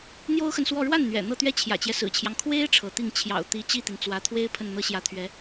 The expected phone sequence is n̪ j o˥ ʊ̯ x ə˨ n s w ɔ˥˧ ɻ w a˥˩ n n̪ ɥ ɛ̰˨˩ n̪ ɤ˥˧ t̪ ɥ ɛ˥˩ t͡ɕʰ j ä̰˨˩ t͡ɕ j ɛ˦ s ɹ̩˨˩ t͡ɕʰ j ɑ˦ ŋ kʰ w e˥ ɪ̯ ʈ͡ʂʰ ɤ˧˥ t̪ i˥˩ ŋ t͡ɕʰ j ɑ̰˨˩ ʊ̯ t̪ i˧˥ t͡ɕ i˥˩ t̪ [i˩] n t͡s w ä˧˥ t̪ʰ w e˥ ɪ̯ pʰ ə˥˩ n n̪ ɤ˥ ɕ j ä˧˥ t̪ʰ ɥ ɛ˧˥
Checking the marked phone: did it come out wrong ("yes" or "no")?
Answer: no